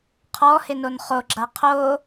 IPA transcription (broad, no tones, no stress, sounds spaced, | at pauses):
qʰ ɔ h ɪ n o n χ o ɡ͡ǁ a qʰ o